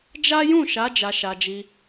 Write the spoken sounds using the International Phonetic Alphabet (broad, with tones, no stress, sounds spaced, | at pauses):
d͡ʒ a˦ j ũ˦˨ ʃ a˨˦ d͡ʒ a˧ ʃ a˧ d͡ʒ i˧